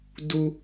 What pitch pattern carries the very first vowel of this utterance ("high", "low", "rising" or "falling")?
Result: high